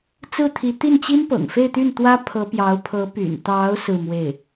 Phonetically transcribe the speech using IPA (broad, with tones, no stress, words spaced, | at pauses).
t͡sɹ̩˥˩t̪ʰi˧˥ t̪i˥˩nt͡ɕi˥npɤ̰˨˩ŋ fe˥˧ɪ̯t̪y˥˩nt̪wä˥ pʰɤ˧˥pjɑ˧˥ʊ̯ pʰɤ˧˥py̰˨˩nt̪ɑ˧˥ʊ̯ sɹ̩˥˧mwe˥˩ɪ̯